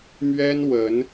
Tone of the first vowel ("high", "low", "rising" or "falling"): high